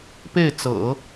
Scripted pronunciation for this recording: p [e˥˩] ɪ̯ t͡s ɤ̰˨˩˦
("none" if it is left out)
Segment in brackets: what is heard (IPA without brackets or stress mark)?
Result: e˥˩